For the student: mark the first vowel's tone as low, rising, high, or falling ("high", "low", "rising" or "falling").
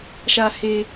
high